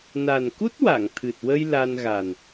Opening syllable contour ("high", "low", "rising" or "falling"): low